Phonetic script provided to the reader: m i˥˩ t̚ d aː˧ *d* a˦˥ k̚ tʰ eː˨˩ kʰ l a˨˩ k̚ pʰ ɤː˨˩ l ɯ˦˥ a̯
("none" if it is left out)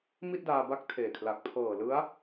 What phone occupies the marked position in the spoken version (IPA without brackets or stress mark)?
b